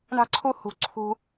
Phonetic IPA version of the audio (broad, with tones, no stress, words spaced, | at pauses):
ɳa̤˥ǀʰu˥hṳ˦˨ ǀʰṳ˥